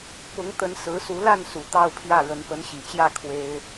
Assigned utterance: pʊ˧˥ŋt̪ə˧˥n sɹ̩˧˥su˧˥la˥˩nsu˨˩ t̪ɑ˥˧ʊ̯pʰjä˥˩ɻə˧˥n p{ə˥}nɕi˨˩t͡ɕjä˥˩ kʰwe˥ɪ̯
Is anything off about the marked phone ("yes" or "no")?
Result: yes